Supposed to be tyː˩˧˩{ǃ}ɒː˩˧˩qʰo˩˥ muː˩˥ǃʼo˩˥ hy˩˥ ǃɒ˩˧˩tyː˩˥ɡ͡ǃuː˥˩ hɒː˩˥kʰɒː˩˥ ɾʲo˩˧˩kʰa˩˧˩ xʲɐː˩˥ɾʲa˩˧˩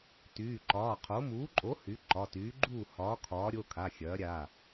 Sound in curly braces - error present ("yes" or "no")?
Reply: no